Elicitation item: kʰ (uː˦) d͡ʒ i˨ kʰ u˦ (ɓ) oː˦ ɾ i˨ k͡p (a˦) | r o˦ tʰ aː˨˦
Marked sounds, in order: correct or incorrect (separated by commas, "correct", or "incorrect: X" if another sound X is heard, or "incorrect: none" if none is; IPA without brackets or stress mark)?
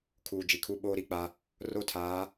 incorrect: uː˨, correct, correct